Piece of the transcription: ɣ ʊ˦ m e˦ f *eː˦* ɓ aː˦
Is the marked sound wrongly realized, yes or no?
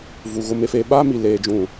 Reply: no